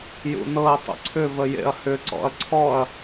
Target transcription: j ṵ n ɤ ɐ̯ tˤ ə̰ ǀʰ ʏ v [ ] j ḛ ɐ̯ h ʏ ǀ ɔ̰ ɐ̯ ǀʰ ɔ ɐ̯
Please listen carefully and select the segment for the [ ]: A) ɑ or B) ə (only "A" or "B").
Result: B